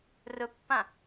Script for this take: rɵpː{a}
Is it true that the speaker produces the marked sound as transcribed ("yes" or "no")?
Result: no